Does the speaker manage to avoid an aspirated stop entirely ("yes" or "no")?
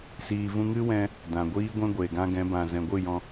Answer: yes